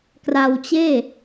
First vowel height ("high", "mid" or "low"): low